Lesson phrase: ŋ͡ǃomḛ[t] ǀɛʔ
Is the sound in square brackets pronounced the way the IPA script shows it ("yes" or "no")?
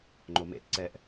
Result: yes